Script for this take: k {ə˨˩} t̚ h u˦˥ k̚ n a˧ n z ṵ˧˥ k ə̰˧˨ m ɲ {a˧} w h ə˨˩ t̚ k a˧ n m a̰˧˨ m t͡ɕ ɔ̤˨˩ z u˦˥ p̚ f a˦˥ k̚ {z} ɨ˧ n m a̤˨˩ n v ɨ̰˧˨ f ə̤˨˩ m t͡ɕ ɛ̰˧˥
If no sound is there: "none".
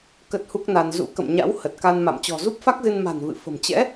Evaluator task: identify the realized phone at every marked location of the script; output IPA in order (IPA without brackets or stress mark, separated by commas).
ə˦˥, a̰˧˥, z